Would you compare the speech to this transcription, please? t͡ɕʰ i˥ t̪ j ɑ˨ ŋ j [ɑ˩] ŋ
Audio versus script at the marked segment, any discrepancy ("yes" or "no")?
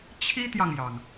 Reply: no